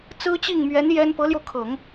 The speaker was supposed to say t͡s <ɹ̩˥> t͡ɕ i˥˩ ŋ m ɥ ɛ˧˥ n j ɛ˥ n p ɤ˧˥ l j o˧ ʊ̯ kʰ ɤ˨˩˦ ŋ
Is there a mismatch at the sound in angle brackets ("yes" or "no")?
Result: no